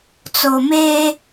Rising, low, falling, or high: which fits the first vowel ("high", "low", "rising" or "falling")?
low